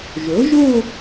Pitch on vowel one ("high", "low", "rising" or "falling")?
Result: rising